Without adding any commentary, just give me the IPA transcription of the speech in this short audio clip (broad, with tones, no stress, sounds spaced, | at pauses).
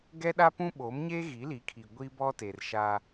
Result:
ɡ ɛ˦ ɗ a˦ p ũ˦ ɓ o˨˦ m ɲ e˦ ɣ i˨˦ l i˨˦ kʰ i˨ ɡʷ i˦ b ɔ˦ t e˨ r ʃ a˦